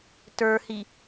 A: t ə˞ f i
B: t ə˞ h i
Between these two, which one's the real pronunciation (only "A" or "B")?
B